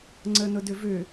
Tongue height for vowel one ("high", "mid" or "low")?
mid